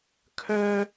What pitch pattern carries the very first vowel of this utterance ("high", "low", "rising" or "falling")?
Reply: high